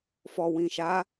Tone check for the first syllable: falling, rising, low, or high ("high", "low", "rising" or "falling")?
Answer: low